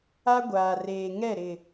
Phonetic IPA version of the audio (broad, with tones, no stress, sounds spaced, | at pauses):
a˦ ɡʷ aː˨ r eː˨ ŋ ɛ˦˨ ɾ ɪ˨